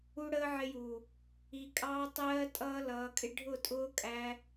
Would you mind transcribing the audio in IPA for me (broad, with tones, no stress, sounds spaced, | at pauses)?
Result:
u˦ ɽ əː˦ ʕ ɪ˧ j u˨ | i˧ kʼ ɑː˦ tˤ ɜː˦ tʼ ʌː˧ l ʌː˨˦ kʼ ɪ˦ ɖʱ ʊ˦˨ tʼ ʊː˦ kʼ æ˧